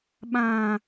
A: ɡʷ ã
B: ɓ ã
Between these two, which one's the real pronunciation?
B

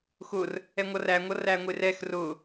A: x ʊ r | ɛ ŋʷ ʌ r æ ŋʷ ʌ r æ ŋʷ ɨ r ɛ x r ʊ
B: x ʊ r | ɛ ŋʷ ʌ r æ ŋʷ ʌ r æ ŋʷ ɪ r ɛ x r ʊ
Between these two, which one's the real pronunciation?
B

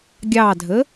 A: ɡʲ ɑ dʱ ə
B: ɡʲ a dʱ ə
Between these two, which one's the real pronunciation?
A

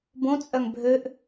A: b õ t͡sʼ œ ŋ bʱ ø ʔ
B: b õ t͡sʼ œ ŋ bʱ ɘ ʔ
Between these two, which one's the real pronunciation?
A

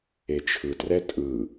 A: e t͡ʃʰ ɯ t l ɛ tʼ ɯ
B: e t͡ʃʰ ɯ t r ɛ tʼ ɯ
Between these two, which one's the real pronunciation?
B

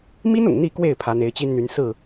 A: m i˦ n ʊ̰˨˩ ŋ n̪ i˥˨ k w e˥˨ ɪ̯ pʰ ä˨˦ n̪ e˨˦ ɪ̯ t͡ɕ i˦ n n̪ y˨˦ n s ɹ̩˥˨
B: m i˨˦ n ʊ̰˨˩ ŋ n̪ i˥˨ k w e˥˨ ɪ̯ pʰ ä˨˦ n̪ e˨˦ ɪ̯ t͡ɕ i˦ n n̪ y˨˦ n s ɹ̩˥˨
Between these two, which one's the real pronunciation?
A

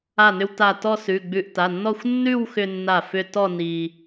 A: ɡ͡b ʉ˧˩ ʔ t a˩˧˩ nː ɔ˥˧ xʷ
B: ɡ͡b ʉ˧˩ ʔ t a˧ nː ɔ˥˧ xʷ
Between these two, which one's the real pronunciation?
A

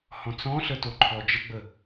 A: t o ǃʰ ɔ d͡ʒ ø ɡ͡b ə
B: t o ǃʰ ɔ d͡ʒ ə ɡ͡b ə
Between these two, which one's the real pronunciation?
B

